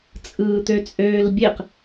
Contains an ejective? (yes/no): yes